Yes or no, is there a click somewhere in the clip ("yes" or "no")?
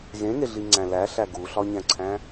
yes